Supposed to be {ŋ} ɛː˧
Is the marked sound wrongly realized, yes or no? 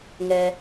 no